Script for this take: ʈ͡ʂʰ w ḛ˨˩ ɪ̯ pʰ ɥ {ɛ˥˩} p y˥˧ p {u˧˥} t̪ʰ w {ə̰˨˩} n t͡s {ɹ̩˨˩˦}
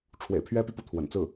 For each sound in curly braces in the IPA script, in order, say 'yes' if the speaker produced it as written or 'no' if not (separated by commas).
no, no, yes, no